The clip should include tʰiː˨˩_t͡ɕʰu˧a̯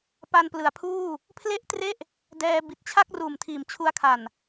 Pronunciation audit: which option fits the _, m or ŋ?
m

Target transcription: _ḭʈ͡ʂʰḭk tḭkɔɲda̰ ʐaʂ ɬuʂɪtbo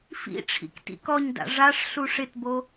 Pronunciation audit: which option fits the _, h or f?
f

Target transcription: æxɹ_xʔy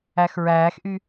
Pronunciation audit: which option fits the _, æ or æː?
æː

